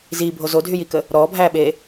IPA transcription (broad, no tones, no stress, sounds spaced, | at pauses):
z iː bʱ o z o dʱ y j i k ə | ɾ ɔː bʱ æː ɓ eː